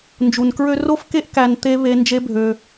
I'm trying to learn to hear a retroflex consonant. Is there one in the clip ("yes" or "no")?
no